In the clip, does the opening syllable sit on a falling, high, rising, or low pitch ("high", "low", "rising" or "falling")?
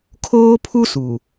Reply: high